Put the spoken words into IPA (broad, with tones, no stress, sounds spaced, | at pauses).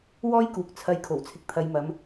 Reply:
w ɔː˥ j k uː˨ k̚ t͡sʰ ɐ˨˧ j kʰ o˨˩ w t͡sʰ ɪ˨ k̚ t̪ʰ ɐ˨˧ j m ɐ˨˧ m